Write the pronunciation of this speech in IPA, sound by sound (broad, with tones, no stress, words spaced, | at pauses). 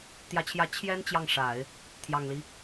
t̪jä˧˥t͡ɕʰjä˧˥ t͡ɕʰjɛ˥n t͡ɕjɑ˥˩ŋʂa˨˩˦ɪ̯ | t̪ʰjɑ˨˩ŋli˦